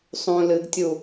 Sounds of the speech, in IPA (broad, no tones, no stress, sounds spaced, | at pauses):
sˤ ũ l ɨ ɡ tʲ u